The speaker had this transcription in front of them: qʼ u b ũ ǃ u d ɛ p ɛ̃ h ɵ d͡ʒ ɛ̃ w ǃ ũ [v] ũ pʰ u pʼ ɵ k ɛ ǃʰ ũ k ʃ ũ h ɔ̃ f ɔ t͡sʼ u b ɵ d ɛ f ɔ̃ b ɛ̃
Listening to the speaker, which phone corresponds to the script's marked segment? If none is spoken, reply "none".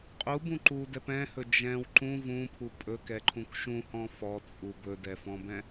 v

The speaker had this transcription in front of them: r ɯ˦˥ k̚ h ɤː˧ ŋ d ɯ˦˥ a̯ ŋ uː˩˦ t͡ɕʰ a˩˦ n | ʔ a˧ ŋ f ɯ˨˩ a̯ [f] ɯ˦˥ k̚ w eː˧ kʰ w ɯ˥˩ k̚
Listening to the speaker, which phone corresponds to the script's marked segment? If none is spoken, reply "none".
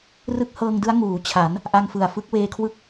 f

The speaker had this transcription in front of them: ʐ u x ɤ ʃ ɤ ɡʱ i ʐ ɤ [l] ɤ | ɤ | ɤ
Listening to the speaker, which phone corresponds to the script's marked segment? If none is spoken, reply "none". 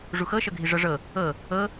ʐ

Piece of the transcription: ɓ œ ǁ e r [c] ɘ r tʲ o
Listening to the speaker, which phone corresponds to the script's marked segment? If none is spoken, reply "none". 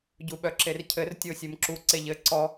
cʰ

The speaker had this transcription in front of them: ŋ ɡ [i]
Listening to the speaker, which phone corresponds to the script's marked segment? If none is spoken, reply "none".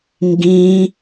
ĩ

